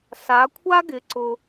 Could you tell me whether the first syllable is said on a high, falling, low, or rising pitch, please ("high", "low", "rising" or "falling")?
rising